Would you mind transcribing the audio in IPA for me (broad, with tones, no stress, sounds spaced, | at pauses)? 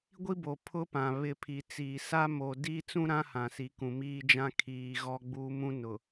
ɡʷ i˦ b o˨ pʰ ʊ˦ p ã˨ β ɪ˦ pʰ i˨ t͡s iː˨ s a˦ m o˨ d iː˦ t͡s ũ˦ ɾ ã˦ h ã˨ s i˨ k ũ˨ m iː˦ d͡ʒ ã˦ kʰ iː˨ ɣ ɔ˦ ɡ͡b u˦ m ũ˦ n ʊ˨